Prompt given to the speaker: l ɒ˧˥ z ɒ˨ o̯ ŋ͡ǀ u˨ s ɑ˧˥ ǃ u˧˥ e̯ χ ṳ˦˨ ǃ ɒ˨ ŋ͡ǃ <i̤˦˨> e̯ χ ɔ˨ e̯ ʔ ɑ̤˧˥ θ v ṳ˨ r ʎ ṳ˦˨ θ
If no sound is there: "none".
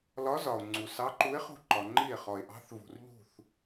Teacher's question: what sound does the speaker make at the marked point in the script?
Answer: i˦˨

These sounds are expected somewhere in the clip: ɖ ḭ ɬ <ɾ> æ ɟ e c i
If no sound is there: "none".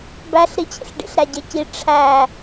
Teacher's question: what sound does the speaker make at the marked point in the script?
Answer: ɾ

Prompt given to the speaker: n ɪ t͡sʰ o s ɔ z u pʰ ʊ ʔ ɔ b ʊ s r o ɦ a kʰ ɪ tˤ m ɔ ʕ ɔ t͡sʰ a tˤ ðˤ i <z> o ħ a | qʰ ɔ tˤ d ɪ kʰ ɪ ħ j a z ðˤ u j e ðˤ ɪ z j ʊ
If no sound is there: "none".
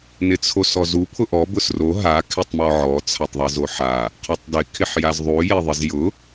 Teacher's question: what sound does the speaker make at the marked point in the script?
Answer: z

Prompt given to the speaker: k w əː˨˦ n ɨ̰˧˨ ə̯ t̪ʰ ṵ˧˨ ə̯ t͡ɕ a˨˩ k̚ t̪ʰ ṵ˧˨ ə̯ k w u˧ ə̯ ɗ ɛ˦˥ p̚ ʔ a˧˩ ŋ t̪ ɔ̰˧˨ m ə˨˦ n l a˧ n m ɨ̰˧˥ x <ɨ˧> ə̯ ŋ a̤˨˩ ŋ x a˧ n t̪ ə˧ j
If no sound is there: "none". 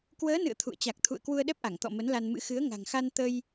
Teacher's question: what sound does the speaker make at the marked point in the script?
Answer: ɨ˨˦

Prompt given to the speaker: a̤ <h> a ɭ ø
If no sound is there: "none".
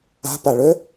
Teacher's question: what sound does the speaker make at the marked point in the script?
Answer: p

